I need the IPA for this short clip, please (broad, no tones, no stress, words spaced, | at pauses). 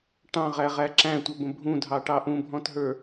ʈɑ̃ʁæʁæ ǁæ̃tʷʌbə̃ bʱũdʱɑʈɑ ʔũbʱɔ̃tɦə˞